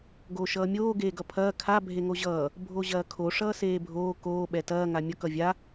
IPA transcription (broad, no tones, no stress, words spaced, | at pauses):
ɡoːʃʌːmʲoː ɡeːɡʌpʰɐː kʰa bʱeŋoʑʌː | bʱoʑɐːkʰo ʂʌːseːbʱoː koː ɓɛtɐː ŋamʲʌk ʌvʲa